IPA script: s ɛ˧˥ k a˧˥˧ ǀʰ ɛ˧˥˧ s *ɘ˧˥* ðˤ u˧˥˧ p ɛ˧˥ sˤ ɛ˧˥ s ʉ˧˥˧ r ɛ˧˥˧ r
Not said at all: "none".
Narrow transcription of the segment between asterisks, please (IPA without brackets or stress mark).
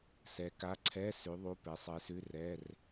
ʉ˧˥